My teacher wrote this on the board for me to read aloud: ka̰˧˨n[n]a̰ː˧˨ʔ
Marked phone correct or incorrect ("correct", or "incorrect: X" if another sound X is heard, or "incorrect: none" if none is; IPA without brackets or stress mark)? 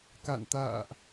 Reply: incorrect: t̪